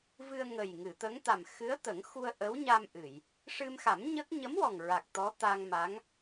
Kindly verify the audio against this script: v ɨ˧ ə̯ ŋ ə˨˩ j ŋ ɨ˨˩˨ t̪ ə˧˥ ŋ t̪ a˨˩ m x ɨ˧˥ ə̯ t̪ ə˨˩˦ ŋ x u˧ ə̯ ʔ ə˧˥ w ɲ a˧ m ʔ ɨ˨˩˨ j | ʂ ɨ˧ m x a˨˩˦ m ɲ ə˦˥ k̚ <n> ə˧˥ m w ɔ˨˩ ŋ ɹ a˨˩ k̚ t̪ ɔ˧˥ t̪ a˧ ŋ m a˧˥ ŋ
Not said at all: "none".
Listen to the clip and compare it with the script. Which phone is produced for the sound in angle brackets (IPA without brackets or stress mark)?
ɲ